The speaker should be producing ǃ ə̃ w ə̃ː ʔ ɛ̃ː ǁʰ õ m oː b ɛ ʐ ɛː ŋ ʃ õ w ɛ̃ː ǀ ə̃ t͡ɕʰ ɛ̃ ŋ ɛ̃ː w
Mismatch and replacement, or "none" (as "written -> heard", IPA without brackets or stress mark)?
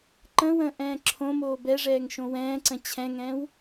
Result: none